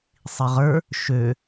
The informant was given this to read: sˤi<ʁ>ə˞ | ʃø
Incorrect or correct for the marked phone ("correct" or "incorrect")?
correct